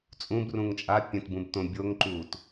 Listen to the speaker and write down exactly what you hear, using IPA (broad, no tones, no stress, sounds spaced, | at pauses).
t͡sʼ ũ b r ũ ŋ t͡ʃʼ a pʲ ɛ̃ t b ũ b t õ bʲ o ŋ ǃ uː t